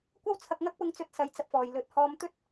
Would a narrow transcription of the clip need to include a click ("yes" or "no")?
no